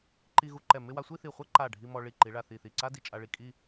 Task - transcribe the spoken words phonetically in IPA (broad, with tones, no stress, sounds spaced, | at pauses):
ǃ i˧ ɣ u˧ ǃ ɛ˧˩ m ɪ˥˧ w a˥˧ sʷ i˥˧ θ i˧˩ χʷ ɛ˥ ǃ a˧˩ ɖʱ i˧ m ɔ˧ ɭ i˧˩ ǃ i˩˧ ɭ a˧˩ θ i˧˩ θ i˧˩ ǀ a˥ d i˧ t͡ʃʼ a˧ ɭ i˧˩ kʼ i˥˧